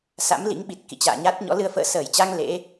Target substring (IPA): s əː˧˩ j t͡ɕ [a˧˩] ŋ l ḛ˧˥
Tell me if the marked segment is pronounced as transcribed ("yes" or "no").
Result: no